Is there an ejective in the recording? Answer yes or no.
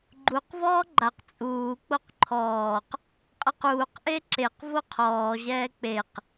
yes